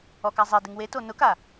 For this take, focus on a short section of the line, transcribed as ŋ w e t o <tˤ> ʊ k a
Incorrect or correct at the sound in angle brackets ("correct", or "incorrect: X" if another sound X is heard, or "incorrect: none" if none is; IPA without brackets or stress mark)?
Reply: incorrect: n